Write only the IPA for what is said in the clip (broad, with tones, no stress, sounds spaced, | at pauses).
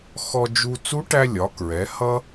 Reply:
x ɔ˧ d͡ʒ u˧ t͡s u˧˥ ʈ æ˧ lʲ ɒ˩˧ k ɹ ɛ˩˧ h ʌ˥